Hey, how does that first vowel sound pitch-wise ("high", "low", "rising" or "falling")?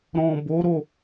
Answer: low